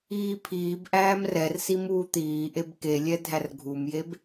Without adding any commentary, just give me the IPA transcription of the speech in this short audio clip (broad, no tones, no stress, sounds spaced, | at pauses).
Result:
iː pʰ iː b ʔ æː m r ɛ r s i m uː t̪ iː ʔ e b k e lʲ ɛ dʱ æ r ɡʱ u m j e b